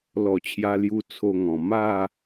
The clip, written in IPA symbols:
l ɔ˨˩ t͡ɕʰ j a˧ l j u˧ t͡sʰ o˧ ŋ ɔ̃˨˩ m a˥˧

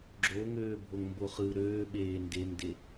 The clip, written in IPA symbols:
ɡ͡ǁ o ŋ øː bʱ o ŋ m b o χ ɯ ɾ øː ɓ eː n d e m d e

